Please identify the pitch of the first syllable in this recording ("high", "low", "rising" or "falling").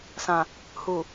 low